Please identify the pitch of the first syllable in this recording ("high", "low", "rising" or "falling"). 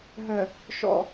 low